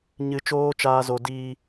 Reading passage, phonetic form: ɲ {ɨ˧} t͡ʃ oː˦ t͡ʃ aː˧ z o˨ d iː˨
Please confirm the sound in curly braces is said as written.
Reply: yes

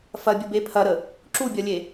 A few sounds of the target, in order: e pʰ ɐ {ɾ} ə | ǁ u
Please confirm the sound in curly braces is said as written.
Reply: yes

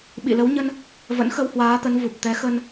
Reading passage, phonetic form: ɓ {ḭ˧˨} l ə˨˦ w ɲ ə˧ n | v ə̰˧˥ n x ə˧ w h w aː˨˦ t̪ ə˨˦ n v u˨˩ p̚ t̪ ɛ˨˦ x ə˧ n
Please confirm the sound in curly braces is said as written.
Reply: yes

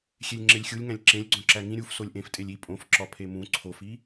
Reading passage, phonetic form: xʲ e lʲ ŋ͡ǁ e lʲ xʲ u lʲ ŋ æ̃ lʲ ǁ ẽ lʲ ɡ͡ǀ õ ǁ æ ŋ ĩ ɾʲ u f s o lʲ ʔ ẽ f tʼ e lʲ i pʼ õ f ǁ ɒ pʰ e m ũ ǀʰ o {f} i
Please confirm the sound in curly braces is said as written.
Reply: yes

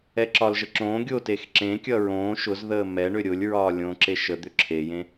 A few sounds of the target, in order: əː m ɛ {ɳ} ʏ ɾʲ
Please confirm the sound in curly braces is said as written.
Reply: yes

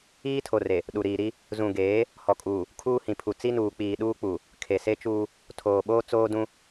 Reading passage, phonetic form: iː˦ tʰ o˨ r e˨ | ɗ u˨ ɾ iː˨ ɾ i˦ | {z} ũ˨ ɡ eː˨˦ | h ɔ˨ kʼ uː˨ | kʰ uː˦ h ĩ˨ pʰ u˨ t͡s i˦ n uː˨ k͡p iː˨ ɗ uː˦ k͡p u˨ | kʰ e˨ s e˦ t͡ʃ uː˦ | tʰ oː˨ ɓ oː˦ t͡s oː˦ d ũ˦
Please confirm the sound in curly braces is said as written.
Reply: yes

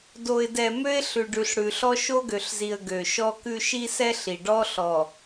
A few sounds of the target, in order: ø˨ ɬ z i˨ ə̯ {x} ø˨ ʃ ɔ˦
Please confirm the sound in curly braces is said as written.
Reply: no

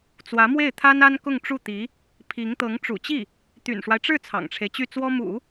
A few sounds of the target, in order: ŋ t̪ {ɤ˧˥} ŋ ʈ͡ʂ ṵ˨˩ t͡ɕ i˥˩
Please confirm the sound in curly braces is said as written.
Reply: yes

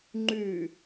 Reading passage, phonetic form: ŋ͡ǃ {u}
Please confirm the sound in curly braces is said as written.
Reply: no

